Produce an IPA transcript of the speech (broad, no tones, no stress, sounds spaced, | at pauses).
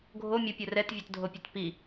ɡʱ o mʲ ʊ pʲ o r ɛ t vʲ ə˞ t dʱ o pʲ o t p i